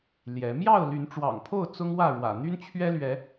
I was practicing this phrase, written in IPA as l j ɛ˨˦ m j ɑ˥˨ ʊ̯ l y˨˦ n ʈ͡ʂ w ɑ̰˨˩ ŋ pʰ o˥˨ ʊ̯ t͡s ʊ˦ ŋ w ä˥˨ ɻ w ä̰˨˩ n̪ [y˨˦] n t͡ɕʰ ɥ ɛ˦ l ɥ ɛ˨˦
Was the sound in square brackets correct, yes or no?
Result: no